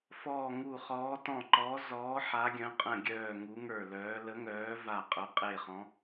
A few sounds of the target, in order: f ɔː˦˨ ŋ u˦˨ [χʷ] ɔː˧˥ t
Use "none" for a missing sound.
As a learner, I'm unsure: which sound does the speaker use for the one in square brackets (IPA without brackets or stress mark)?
χ